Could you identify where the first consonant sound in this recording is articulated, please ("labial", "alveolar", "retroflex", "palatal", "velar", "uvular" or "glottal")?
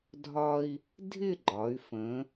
alveolar